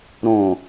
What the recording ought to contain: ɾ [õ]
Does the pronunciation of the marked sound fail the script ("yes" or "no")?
no